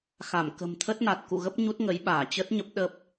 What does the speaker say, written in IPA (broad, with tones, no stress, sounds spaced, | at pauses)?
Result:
x a˧˩ m k ə̤˨˩ m t̪ʰ ə˦˥ t̚ n a˨˩ t̚ k ṵ˧˨ ɣ ə˦˥ p̚ ɲ u˦˥ t̚ ŋ ə˨˦ j ɓ aː˧˩ t͡ɕ ə˦˥ t̚ ɲ ə˦˥ p̚ ɗ ə˦˥ p̚